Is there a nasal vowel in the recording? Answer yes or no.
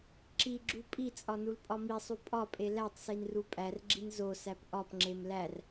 no